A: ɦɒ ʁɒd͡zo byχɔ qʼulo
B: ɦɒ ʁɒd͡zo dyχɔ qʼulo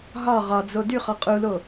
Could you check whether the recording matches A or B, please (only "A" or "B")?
B